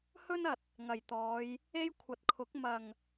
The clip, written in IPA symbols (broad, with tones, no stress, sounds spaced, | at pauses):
h ɵ˥ n ɐ˨ t̚ | ŋ ɐ˨˩ j t̪ ɔː˨˧ j | e˥ j kʷʰ ɐ˨ t̚ kʰ ʊ˨˥ k̚ m ɐ˨˩ ŋ